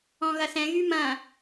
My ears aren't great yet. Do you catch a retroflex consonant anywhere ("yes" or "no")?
no